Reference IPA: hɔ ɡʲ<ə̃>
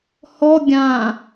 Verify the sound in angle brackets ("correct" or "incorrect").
incorrect